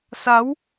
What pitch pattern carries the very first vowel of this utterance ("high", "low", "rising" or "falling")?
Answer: rising